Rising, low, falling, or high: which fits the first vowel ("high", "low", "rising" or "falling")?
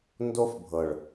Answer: high